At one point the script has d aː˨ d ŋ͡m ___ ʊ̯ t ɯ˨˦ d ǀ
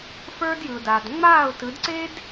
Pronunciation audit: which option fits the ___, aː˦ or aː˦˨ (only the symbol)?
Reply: aː˦˨